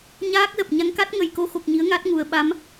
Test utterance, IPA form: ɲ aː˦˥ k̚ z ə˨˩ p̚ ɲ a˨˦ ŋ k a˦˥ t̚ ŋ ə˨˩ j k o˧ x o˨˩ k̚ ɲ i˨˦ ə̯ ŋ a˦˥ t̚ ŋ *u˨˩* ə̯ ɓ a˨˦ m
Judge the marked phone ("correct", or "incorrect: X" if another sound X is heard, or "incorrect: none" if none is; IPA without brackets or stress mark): correct